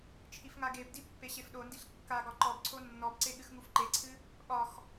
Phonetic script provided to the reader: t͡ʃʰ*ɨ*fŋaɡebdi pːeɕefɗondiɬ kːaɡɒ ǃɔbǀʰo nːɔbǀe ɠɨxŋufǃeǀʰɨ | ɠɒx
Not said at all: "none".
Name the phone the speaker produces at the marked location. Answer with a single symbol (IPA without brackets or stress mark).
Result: i